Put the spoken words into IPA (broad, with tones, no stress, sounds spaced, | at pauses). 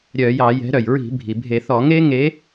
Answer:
ɾʲ œ˧˩˧ j ɑ˧˩˧ j ɛ̤˨˦ ɾ œ˩ j ɹ i̤˧˩˧ bʱ i˩ bʱ e˧˩˧ θ ɔ˧˩˧ ŋ e˦ ŋ e˨˦